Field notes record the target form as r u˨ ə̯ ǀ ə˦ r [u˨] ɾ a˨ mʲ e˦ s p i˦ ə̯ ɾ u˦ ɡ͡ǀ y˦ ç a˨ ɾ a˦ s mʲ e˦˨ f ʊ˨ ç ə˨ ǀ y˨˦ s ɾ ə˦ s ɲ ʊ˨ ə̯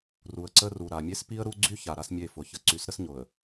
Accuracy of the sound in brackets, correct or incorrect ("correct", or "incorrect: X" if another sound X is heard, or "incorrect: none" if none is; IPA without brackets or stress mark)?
correct